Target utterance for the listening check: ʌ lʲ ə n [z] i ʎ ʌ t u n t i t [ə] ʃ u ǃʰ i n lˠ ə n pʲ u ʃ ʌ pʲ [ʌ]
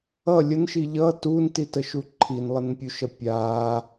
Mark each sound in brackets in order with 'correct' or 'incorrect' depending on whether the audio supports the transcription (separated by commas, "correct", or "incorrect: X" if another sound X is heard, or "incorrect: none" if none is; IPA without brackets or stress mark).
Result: incorrect: ʃ, correct, incorrect: a